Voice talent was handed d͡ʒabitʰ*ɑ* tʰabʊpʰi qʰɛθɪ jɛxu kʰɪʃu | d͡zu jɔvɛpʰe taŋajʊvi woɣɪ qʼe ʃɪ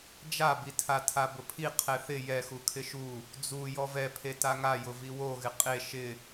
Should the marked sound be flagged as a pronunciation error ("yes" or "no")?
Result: yes